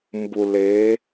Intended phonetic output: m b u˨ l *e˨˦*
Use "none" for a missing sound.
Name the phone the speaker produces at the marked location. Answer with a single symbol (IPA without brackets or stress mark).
e˨˦